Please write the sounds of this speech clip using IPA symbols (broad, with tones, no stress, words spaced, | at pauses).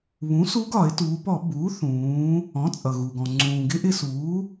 βũ˩˥ su˧˥ɡɒ˧˩˧ɪ̯tuː˩˧pɔ˧˩˧ buː˩˥θũː˩˧ | ɔ̃˩˥t͡sʼʌ˩ɣu˩ɡɔ̃˩ ŋ͡ǀũː˩ɡɪ˧˥ʔɪ˧suː˩˥